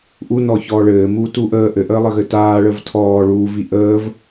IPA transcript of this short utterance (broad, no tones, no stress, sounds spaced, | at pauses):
ʔ u n ɔː ç ɔː ɭ ɘː m uː t u ʔ əː ʔ ɘ ʔ əː lˠ ɘ ɣ ɘ t aː ɭ ə v tʰ ɔː ɭ uː v i ʔ əː v